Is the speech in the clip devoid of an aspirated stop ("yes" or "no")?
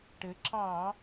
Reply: yes